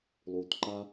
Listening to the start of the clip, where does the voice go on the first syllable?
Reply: low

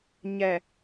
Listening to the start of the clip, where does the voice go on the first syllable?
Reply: low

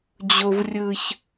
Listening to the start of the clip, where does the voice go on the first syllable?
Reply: low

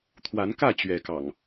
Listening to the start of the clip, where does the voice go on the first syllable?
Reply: rising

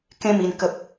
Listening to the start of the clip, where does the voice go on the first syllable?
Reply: high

